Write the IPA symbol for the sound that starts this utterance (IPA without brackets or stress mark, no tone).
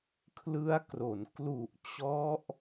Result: kʰ